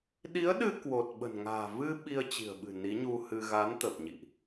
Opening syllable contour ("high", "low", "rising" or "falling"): rising